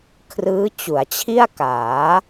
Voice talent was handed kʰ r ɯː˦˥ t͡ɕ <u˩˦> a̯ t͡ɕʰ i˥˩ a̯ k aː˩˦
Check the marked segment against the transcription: correct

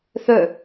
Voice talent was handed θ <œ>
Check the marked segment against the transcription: correct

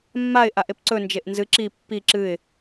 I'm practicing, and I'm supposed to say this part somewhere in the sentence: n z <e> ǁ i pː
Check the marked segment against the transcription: incorrect: ɨ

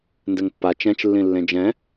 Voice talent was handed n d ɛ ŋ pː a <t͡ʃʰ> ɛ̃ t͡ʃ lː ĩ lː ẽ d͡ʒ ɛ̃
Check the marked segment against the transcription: incorrect: t͡ʃ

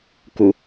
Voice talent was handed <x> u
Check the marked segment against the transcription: incorrect: k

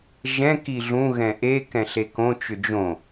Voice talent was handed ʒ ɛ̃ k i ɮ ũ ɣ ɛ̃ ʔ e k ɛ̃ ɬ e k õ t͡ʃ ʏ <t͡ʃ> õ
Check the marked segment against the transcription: incorrect: d͡ʒ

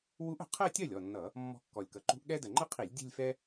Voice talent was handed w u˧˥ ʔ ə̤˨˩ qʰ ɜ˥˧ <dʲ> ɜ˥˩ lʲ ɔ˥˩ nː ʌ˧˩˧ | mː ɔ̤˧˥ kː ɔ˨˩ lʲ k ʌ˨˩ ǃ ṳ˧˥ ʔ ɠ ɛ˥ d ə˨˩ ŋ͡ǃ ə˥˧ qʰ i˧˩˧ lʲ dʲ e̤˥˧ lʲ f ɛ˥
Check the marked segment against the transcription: incorrect: tʲ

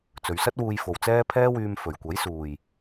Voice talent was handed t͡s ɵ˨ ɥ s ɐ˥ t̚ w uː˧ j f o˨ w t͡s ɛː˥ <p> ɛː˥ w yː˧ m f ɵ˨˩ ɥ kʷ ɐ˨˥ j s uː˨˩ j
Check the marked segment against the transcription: incorrect: pʰ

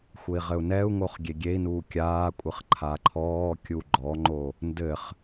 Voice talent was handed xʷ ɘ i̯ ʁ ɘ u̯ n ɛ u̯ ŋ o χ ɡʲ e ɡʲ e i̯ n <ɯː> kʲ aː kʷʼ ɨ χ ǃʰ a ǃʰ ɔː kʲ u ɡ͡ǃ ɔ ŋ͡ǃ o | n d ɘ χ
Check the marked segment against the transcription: incorrect: uː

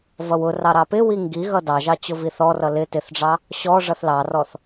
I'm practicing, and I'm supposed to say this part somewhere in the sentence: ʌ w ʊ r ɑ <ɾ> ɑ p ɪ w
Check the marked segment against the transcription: correct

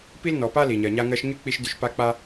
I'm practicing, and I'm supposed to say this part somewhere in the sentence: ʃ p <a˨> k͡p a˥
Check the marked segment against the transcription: incorrect: a˥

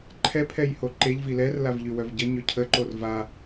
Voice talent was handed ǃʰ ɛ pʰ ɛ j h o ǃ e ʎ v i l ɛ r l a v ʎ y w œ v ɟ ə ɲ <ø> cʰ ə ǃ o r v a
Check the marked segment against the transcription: correct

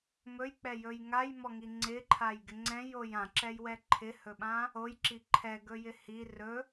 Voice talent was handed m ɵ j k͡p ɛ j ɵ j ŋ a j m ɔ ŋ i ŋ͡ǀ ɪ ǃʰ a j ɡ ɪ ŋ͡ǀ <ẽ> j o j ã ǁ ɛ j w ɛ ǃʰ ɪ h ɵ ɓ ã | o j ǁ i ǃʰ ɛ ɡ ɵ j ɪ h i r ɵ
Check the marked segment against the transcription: incorrect: ɛ̃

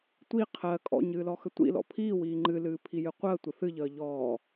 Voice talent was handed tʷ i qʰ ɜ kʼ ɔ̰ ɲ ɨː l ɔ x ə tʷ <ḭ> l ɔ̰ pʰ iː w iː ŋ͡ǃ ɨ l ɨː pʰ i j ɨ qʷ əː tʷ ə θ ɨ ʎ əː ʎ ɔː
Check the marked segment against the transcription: correct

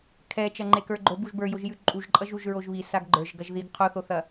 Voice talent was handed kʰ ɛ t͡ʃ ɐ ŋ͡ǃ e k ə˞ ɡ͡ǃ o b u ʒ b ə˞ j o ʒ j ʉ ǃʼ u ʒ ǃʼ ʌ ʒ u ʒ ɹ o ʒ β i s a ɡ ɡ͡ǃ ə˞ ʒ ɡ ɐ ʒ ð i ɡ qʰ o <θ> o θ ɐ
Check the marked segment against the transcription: correct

